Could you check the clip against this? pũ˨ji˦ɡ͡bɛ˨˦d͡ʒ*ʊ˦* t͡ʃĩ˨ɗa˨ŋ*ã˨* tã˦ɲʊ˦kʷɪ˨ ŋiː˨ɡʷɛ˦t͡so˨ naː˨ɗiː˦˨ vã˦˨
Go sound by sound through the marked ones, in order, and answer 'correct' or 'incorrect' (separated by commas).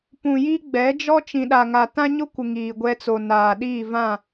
incorrect, incorrect